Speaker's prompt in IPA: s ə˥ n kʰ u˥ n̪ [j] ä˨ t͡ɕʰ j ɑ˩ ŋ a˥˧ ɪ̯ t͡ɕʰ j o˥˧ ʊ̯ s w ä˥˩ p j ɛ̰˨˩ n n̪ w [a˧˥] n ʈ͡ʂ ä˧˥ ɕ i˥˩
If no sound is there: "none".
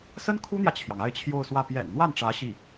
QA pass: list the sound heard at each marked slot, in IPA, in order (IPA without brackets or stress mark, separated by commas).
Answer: j, a˥˩